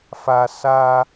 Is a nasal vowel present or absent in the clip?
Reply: absent